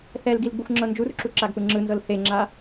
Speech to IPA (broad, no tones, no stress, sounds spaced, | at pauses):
θ ɛ l ɡ i l ɡ͡b u xʷ ŋ͡ǁ ɤ n d͡ʒ u r ǁ u ǁ a ɡ p ɯ ŋ͡ǁ ɯ n z ɤ l θ e ŋ͡ǁ a